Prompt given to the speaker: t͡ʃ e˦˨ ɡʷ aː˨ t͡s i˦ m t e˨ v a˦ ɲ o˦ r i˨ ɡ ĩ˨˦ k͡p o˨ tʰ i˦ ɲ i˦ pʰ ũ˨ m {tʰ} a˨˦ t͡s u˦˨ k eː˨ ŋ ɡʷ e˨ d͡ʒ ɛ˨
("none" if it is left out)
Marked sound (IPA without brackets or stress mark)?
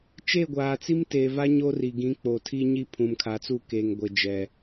kʰ